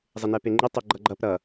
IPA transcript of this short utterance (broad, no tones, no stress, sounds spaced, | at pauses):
zˤ ɪ n ɛ p e ŋ͡ǃ ɪ tˤ ɪ ɡ͡ǃ ʌ ɡ͡ǃ ʌ p ɾ ʌ